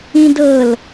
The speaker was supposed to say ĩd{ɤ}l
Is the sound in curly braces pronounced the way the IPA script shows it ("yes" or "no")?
yes